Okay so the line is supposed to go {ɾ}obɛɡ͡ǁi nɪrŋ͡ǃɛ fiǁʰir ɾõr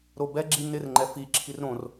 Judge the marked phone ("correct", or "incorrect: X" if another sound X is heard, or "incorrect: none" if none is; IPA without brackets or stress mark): correct